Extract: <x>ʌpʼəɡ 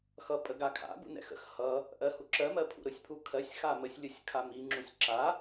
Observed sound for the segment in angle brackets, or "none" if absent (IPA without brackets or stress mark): x